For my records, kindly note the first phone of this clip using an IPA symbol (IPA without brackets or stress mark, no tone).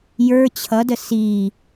j